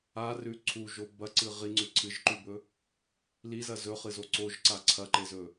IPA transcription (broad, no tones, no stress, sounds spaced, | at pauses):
a r ʉ ǀʰ u ʒ o b ɐ ǀ ɨ ʁ i ŋ͡ǀ ʉ ǀʰ ɨ ʒ ǃ ʉ b ɵ | l i z ɐ z ɵ χ ɨ z o ǀ o ʒ ǀ a ǀʰ ɐ ǃ e z ɵ